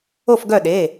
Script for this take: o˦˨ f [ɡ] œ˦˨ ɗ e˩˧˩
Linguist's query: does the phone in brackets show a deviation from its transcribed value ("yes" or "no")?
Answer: no